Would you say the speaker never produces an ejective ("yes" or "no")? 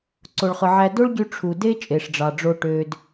no